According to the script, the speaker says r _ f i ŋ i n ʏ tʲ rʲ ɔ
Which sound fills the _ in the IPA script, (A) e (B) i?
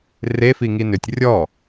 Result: A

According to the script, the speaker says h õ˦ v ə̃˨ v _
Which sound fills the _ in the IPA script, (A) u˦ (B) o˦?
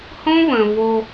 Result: B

